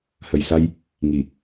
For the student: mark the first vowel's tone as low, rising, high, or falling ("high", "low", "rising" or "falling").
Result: low